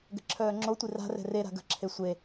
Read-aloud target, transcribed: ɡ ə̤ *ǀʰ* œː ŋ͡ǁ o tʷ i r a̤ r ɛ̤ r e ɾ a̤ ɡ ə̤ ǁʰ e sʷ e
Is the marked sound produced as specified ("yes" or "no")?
no